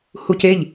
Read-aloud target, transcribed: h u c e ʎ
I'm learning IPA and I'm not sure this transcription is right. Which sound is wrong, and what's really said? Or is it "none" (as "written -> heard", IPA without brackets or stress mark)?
none